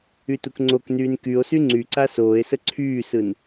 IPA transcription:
y t u k ŋ͡ǀ o k n yː n k y o̯ s y ŋ͡ǀ y ǀ a s oː e̯ s ə ǀʰ yː s ɯ n

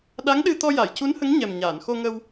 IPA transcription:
ɗ a˧˥ ŋ ɗ ɨ˧ t̪ ɔ˧ j a˨˩˨ j c u˧˥ n h ə˧˥ ŋ ɲ ɛ˨˩ m ɲ aː˨˩˨ n x o˧ ŋ ə˧ w

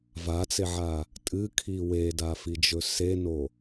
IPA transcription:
v a t͡s e ʕ a | tʼ ɨ kʰ i w e d a f i d͡ʒ ɵ s e n o

